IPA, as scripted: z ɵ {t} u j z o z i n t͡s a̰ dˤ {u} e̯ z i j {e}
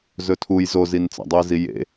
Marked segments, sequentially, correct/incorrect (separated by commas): incorrect, correct, incorrect